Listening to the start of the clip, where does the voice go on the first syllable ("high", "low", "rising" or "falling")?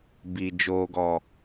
low